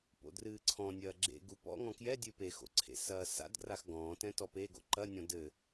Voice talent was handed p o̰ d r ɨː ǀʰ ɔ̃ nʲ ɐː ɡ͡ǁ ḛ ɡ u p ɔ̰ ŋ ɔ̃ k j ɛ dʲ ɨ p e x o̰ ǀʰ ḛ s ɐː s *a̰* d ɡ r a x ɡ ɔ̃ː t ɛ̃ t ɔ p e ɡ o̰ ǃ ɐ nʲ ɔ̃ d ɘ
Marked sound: correct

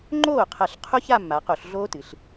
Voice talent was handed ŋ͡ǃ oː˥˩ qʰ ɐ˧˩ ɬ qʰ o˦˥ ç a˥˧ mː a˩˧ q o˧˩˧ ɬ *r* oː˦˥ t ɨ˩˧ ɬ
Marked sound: incorrect: ɮ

